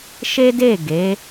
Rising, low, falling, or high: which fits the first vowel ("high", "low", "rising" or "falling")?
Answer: high